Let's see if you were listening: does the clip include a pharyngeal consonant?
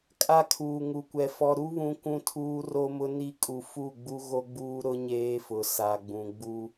no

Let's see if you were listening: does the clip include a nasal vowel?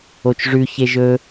no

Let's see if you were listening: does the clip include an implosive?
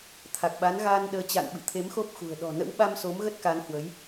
yes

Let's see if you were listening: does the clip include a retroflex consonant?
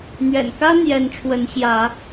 yes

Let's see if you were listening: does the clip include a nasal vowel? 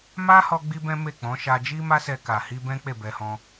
yes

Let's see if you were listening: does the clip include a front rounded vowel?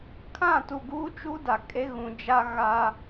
no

